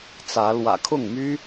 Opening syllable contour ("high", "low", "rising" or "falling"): rising